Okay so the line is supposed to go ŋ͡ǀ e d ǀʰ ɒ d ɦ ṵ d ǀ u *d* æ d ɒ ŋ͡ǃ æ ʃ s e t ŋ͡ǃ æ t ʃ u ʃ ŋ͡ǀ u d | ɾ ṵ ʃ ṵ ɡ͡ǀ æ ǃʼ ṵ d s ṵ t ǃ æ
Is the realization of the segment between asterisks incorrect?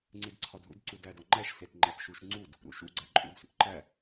no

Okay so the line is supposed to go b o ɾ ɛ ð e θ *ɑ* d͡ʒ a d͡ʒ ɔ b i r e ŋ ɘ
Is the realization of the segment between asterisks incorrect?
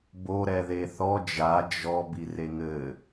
yes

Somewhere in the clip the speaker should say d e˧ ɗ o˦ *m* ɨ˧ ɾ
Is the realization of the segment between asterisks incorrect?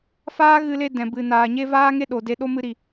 no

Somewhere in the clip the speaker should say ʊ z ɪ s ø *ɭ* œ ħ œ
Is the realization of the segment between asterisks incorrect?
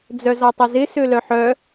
yes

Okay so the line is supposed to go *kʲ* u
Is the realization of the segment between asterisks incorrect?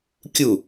no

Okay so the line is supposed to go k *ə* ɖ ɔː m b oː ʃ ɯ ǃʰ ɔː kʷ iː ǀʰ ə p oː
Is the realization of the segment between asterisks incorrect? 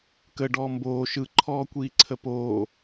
no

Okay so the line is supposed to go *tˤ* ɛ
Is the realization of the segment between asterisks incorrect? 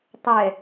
no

